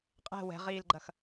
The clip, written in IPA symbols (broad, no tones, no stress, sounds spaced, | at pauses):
qʼ ɛ̤ w ɛ̤ ʁ iː l ɡ͡ǃ ɐ x